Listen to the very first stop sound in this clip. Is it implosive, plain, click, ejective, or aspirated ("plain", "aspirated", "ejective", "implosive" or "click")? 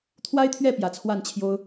aspirated